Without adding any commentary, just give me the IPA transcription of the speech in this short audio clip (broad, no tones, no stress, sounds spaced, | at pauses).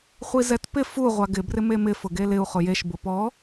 χʷ i z ɛ t p ɪ f u ʁʷ a ɡ ɪ b r ɪ m e m ɪ f ʊ ɡ e l ɪ u̯ χ ʊ j e ʃ b ʊ p ɔ